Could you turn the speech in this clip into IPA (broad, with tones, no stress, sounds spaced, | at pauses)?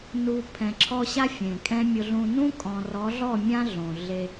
n u˨ pʰ ɛ̃˨ ǁʰ ɔ˦ ɕ a˦ fʲ ẽ˨ kʼ ɛ̃˦ mʲ ʊ˨ ɮ ũ˨ n ũ˦ kʼ ɔ̃˨ r ɔ˨˦ ɮ ɔ˦˨ mʲ ã˦ ɮ õ˨ ɮ e˦